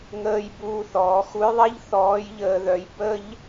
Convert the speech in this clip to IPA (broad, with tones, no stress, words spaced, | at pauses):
ŋəː˧j buː˧θɔː˩˧xu˧˥jðˤɛ˥ʎ θɔː˧˥jʎəː˧ðœ˧j bə˥ʎ